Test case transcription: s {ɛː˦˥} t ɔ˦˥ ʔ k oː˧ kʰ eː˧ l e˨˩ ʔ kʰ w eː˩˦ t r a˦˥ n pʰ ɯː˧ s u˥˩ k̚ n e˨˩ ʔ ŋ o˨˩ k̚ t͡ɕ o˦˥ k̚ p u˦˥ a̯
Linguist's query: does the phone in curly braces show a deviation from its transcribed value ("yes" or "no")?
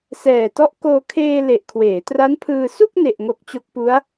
yes